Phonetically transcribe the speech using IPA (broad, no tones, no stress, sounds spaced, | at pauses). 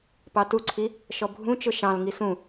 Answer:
p ɑ t u ǀʰ i | ʃ ɔ bʱ ũ t͡ʃ ʊ ʃ ɑ̃ l ŋ i s ũ